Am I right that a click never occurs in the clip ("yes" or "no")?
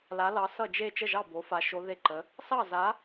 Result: no